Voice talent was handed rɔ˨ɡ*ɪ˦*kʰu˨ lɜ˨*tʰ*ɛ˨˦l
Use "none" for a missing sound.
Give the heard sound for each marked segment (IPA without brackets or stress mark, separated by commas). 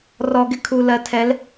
ɪ˦, tʰ